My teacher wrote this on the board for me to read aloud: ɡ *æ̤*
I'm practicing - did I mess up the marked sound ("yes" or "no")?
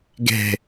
yes